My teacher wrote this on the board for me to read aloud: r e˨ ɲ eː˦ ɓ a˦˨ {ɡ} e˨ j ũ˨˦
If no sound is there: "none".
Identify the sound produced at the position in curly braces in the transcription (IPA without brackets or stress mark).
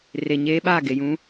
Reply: ɡ